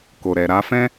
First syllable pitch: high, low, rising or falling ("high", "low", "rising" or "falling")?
low